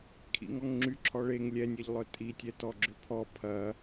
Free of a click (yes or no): no